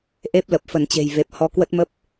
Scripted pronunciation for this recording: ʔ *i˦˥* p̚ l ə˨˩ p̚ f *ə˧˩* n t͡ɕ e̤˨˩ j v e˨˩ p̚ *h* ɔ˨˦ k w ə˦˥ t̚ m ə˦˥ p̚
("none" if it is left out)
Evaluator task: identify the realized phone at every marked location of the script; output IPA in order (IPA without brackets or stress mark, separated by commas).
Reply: e˦˥, ə˧˩, h